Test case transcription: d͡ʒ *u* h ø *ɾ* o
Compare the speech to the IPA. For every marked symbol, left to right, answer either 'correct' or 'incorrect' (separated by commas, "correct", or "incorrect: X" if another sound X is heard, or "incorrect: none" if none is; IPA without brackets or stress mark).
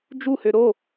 correct, correct